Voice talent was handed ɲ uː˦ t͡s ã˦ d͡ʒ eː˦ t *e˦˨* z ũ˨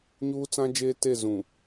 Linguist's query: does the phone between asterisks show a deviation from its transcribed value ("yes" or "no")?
no